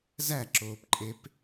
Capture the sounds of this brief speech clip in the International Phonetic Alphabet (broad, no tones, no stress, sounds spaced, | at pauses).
z æ ǁ oː p ǃʼ e p